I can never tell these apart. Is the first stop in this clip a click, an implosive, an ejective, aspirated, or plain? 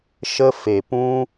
plain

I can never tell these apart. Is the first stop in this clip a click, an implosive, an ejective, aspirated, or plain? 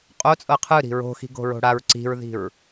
ejective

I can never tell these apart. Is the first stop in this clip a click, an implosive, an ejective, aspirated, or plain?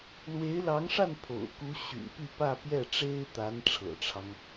aspirated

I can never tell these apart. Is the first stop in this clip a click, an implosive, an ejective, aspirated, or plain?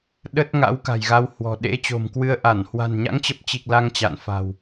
implosive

